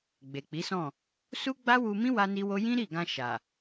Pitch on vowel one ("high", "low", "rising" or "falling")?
low